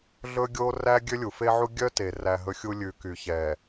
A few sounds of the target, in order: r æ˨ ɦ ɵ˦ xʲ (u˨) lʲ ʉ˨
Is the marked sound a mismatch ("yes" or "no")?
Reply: yes